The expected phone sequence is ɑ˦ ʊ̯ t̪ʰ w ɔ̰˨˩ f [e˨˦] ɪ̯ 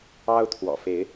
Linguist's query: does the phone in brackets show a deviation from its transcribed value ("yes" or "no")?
no